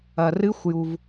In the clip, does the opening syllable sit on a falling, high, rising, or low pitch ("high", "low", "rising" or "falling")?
low